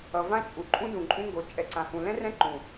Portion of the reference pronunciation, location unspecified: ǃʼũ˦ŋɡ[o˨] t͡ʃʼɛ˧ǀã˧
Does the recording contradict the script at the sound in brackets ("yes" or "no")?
no